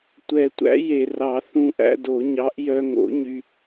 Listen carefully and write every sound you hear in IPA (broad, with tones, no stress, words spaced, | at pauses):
tʷɛ˨˩˦tʷæ̰˨˥je˨˩rɑ˨˩˦ θũ˧ʔæ̰˧do˨˩˦ɲɑ˨˥ʔ jœ˧ŋo̰˨˥ɲy˧